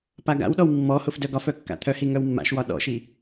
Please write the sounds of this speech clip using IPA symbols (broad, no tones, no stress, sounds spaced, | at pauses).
p a ɡ a̰ w ɗ ɔ w mː ɔ h ʊ f d œ ɡ ɒ f œ kː a̰ t̪ʰ œ h i ŋ œ w mː a̰ ʃ w ɒ ɗ ɔ̰ ʃ i